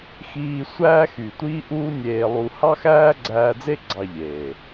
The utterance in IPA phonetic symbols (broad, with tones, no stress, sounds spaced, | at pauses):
x iː˧ sʷ æː˦ x y˨ tʷ iː˦ ʔ uː˦ nʲ eː˧ lˠ u˧ h ɑ˦ x æː˦ ɡ͡ǀ æː˧ d͡z e˦ ɡ͡ǀ ɑ˧ ʎ eː˨